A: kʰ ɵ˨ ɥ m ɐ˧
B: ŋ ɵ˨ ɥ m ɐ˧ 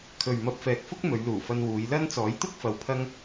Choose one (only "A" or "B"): A